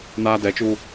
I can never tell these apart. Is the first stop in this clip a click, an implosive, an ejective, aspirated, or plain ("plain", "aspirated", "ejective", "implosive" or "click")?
plain